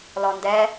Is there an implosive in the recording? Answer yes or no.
no